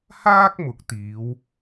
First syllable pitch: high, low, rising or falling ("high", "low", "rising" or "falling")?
high